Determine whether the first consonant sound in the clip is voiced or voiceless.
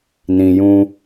voiced